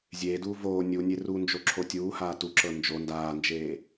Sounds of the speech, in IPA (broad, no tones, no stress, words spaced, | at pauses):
zʲeːduː voː nʲunʲe rund͡ʒoǁʰo tʲuːhaː tuǁɤ nd͡ʒo ndaːnd͡ʒeː